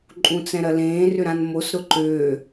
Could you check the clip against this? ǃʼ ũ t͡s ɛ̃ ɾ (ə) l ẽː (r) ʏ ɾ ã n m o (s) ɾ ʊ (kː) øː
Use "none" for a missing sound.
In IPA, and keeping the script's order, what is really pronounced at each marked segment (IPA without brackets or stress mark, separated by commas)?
ɐ, r, s, ǃ